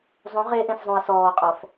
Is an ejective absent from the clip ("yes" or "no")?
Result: no